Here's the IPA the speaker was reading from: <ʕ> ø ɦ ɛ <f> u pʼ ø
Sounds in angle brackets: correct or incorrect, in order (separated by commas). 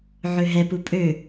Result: correct, incorrect